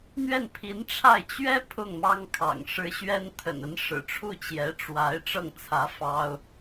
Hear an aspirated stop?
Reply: yes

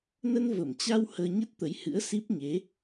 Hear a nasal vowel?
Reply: no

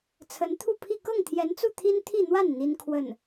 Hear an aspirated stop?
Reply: yes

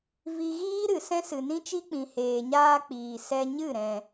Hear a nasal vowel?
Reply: yes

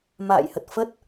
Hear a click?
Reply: no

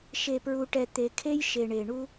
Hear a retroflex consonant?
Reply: yes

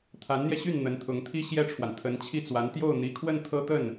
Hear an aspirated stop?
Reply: yes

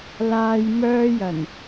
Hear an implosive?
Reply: no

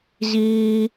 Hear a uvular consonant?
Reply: no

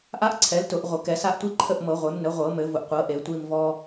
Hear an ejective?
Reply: no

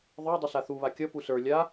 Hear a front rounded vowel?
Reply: no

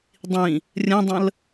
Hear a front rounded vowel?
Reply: no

